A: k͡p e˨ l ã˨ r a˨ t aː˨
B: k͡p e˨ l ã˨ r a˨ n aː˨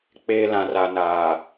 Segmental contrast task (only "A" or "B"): B